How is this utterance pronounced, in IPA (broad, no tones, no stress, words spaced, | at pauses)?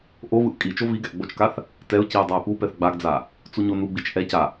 ʔovɯʔ kʼit͡ʃo viɡɛʔ ɡ͡bot͡ʃkaθ | tɛʊ̯ciʊ̯ dˤʌɪ̯pupɛθ ɡ͡baɡd͡za | t͡suɲonuɡ͡bit͡ʃ ʔɛca